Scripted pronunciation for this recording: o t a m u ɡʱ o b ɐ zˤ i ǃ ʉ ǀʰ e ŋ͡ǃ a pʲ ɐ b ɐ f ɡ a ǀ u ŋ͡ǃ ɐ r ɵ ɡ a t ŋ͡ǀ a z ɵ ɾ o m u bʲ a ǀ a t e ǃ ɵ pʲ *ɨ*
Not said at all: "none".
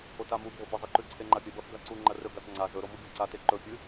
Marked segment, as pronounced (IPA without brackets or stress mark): ɨ